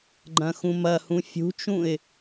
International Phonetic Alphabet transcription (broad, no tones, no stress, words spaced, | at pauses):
ɡ͡ǃɐ̃xũmɐhũ fʲṳt͡ʃũɪ̯